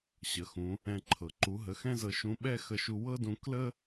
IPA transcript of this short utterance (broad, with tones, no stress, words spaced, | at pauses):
ɕə˩˧xũ˩˧ | ɛ̃˧ ǃʰɤ˩ǃu˩˧ɦə˩˧ xɛ̃˥zɤ˧ʃũ˧˥ɓɛ˥ xə˧ʃu˧wɤ˥dũ˧ klə˥